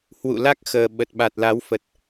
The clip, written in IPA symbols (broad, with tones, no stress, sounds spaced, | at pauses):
h w ṵ˧˨ l a˦˥ k̚ x əː˨˩ ɓ ə˨˩ t̚ ɓ a˨˩ t̚ l a˨˦ w f ə˨˩ t̚